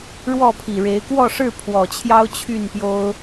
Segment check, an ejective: absent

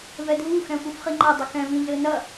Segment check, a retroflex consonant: absent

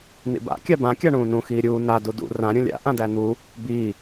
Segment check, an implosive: absent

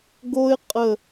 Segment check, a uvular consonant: present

